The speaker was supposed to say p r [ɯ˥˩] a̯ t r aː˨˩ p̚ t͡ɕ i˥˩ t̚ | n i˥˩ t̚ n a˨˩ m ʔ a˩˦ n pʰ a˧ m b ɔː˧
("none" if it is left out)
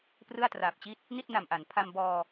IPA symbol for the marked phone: ɯ˥˩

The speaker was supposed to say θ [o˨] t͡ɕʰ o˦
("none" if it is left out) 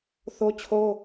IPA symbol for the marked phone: o˦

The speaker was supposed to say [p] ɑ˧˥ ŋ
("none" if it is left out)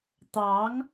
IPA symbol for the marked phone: t̪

